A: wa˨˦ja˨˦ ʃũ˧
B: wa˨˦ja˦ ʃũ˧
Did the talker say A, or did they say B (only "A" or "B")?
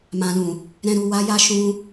B